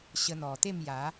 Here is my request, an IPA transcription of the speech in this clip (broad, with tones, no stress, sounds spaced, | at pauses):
ɕ ə˧ n̪ ɔ˨˩ t̪ e˥˧ m j a˨˦